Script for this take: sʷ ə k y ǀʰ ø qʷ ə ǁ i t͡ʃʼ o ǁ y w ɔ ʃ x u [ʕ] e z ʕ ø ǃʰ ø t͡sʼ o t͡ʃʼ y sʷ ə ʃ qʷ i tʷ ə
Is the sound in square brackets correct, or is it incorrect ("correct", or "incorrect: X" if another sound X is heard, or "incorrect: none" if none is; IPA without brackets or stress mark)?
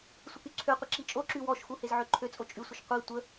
incorrect: h